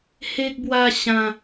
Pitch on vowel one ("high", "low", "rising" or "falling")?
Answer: high